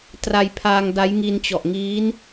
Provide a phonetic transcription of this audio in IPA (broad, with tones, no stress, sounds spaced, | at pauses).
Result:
t r a˧ j pʰ aː˧ ŋ d a˦˥ j ŋ i˧ n t͡ɕ ɔ˨˩ ʔ ŋ iː˦˥ n